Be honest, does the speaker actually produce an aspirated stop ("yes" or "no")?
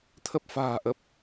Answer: yes